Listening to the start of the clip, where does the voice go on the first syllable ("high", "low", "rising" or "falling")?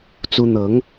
high